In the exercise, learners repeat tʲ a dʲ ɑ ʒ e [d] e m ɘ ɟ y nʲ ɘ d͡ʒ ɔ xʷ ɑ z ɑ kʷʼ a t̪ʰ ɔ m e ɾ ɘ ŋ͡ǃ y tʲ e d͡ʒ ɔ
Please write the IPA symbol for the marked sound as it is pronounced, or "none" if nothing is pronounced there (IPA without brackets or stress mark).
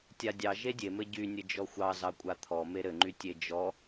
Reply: dʲ